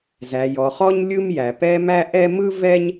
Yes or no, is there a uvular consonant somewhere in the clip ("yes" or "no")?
yes